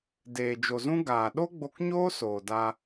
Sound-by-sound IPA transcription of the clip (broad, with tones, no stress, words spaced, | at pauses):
deː˨d͡ʒo˨zũ˦ ɡaː˨ ɗo˦ɡ͡bo˧kɲoː˦ soː˨da˧